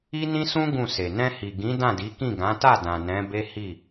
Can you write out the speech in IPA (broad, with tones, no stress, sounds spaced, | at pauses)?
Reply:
i˦ n ĩ˦ s ũ˦ ɡ ũ˦˨ s e˨ n ɛ̃˧ h i˨ ɡ ĩ˨˦ d ã˦˨ d i˨˦ k ĩ˦˨ ɡ ã˨˦ t a˦˨ d ã˨ n ɛ̃˨˦ b e˦ h i˦˨